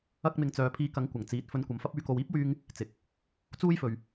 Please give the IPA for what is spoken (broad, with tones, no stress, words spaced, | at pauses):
ɐ˥k̚mɪ˧ŋ t͡sœː˨pʰiː˧kɐ˨˥ŋ kʷɐ˨˩ŋt͡siː˨˥t̚ fɵ˧nkʷɐ˨mfɐ˥p̚ yː˨˧ko˨wiː˥p̚ wyː˥ŋ | t͡sɪ˨k̚ | t͡suː˥jfɵ˨ɥ